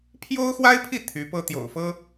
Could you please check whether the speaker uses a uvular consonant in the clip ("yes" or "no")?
no